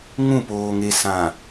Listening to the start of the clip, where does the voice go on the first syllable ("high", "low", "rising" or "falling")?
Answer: falling